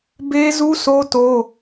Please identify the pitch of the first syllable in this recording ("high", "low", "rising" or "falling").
high